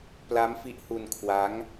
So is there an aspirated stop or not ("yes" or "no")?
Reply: yes